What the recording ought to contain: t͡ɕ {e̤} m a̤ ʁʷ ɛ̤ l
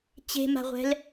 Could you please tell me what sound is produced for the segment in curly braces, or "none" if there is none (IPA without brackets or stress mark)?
e̤